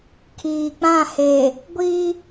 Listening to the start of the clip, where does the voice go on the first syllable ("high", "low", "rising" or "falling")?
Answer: low